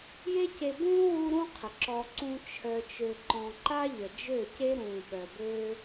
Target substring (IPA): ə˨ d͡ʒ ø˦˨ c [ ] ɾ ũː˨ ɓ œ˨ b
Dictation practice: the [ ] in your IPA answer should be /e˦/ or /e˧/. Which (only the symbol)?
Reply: e˦